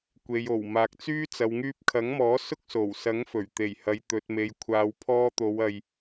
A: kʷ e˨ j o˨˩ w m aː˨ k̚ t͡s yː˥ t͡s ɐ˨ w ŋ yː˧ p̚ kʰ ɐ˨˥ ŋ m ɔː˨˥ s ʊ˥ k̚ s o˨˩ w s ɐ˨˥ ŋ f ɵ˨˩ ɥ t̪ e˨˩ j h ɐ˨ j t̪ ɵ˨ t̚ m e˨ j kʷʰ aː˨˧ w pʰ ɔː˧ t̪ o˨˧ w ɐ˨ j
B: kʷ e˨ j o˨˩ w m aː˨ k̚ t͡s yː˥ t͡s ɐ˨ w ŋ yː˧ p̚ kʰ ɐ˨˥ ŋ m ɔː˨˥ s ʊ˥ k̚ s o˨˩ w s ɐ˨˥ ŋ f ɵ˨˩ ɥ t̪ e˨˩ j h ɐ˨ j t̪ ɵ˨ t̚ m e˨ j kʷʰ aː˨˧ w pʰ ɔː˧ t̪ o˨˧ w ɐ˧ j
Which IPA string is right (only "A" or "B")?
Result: A